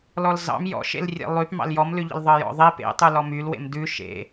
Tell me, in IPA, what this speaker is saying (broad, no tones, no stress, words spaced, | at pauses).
lɔlzɑ̰m jɔ̰ʃḛlrʲḛ lˠyp mɑ̰ljɔmlʉʎə̰l ðˤɤjɔ̰ðˤe pḛtˤʉ lɔmylwḛm dʉ ʃḛ